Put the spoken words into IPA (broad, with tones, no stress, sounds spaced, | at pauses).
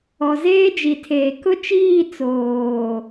ɔ˨ z eː˦ d͡ʒ i˨ tʰ eː˨ k ʊ˦ t͡ʃ iː˦˨ t͡s oː˨